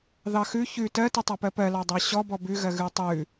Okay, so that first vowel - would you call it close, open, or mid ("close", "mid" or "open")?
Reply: open